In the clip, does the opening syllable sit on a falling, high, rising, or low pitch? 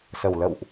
low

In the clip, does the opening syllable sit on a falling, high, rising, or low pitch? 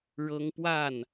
high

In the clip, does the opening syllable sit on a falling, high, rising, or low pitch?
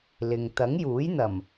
low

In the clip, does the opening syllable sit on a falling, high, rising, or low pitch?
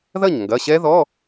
falling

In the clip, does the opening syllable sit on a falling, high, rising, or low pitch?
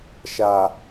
low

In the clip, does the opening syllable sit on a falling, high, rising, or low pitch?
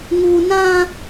high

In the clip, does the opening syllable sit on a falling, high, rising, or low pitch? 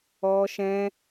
high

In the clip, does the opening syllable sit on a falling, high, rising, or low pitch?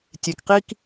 low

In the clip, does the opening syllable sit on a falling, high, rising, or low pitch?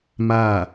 falling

